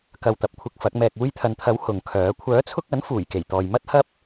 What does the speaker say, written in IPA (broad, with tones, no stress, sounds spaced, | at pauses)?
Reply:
k ɐ˧ w t̪ ɐ˨˥ p̚ kʷʰ ɪ˧ k̚ f ɐ˨˥ k̚ m ɛː˨ k̚ uː˧ j t̪ʰ ɐ˨ n t̪ʰ ɐ˨˥ w h ʊ˨ ŋ kʰ œː˨˥ kʷʰ œː˨˥ t͡sʰ ʊ˧ k̚ ɐ˨˥ n f uː˨˩ j k e˨˩ j t̪ ɔː˨ j m ɐ˥ t̚ h ɐ˥ p̚